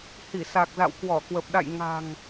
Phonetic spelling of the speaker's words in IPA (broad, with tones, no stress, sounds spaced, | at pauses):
h i˧˩ s a˨˩ k̚ z a̰˧˨ w k w ɔ˧˩ k w ə˨˩ p̚ ɗ a̰˧˨ j ŋ a̤˨˩ ŋ